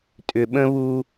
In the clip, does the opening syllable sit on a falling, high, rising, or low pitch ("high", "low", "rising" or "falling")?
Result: low